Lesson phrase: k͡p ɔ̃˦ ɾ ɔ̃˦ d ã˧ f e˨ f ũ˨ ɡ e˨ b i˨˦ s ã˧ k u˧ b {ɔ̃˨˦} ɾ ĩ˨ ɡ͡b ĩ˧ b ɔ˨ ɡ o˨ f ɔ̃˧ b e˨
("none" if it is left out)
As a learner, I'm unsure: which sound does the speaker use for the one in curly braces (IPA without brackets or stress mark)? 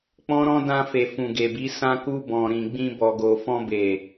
ɔ̃˨